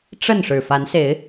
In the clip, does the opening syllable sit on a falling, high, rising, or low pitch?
falling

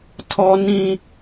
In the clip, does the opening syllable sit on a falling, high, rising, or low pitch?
high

